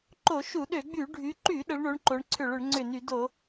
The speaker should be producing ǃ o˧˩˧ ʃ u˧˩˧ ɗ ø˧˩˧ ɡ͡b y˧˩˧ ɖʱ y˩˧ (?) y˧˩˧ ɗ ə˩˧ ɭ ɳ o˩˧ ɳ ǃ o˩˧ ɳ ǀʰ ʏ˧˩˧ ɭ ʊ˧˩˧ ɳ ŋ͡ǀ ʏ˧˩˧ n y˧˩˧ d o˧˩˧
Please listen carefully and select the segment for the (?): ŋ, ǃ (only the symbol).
ǃ